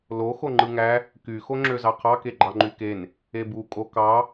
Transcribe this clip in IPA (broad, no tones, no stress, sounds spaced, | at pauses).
l o x o ŋ͡ǃ ɯ ŋ æ | k y x o ŋ͡ǁ ø z ɑ qʰ ɑ k e ɡ͡ǃ ɑ ŋ͡ǃ y k e n | e b u kʼ o k ɑ